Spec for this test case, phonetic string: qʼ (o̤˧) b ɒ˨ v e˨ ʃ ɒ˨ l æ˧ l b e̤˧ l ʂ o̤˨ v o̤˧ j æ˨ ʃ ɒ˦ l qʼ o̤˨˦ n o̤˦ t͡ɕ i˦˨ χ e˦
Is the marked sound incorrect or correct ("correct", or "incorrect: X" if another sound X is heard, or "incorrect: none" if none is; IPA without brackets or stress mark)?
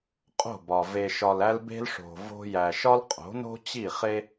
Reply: incorrect: o̤˦˨